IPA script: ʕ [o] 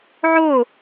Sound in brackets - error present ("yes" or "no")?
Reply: no